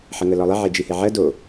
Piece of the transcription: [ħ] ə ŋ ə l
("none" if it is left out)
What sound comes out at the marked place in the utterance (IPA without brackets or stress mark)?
ħ